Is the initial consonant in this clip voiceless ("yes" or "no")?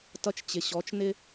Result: yes